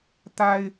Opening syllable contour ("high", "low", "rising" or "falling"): high